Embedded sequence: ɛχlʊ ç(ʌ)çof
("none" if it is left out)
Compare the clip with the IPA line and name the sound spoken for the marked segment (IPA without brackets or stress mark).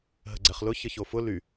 ə